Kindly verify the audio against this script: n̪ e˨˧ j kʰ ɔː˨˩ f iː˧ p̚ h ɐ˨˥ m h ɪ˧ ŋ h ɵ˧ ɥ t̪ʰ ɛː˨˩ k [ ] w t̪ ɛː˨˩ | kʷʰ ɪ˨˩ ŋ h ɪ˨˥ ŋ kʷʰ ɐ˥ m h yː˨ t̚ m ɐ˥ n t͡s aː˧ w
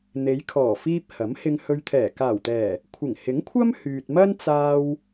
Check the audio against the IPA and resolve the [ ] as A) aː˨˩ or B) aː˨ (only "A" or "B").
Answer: A